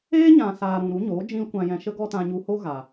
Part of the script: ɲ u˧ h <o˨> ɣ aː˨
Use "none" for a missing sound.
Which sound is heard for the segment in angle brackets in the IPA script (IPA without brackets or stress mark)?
o˦